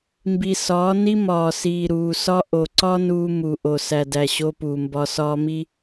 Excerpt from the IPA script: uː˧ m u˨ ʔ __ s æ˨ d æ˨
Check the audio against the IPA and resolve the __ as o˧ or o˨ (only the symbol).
o˨